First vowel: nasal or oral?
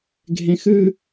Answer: nasal